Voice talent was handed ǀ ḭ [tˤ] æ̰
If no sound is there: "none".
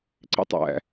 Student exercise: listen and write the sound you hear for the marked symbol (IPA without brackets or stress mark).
tˤ